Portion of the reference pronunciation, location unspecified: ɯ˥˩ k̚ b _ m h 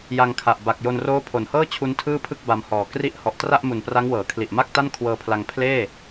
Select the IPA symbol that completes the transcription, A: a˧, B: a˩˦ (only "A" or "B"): A